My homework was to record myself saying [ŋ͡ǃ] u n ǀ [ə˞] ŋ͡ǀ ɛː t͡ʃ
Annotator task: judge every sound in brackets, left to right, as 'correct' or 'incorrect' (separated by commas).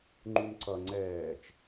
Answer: correct, incorrect